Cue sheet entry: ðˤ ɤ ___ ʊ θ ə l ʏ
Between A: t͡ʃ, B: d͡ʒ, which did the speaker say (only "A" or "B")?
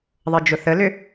B